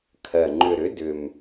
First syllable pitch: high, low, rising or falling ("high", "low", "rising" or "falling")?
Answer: low